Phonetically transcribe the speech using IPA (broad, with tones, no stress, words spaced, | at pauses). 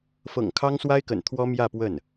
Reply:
fɤ̰˨˩ŋkʰɑ˥ŋswa˥ɪ̯kə̰˨˩n t̪ʰwɔ˥mjä˥˧pwə˥˩n